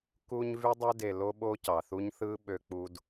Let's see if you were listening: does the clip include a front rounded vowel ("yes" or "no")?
yes